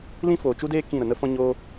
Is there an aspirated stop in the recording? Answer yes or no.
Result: no